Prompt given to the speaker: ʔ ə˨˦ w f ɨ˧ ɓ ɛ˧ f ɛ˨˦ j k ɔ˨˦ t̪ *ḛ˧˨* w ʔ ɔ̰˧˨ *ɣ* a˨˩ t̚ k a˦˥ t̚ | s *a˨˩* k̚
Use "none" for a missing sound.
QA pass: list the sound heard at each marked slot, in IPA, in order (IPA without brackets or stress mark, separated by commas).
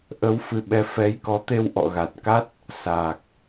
e˧, ɣ, aː˨˩